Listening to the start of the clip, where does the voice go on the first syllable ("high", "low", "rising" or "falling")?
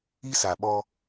high